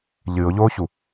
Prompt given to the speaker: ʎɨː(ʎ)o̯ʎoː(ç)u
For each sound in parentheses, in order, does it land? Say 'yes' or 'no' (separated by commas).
no, yes